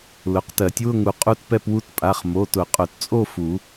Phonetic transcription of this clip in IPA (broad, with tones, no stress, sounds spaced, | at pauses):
l ʊ˩˧˩ q t ɜ˨˩˦ tʲ w ʊ˥˧ ŋ u˧ qʼ u˥˧ t p ɛ˥˧ p w u˦˥ t pʼ a˩˧˩ χ m o˩˧˩ t ʊ˨˩˦ qʼ ʊ˨˩˦ t t͡sʼ o˥˧ f u˨˩˦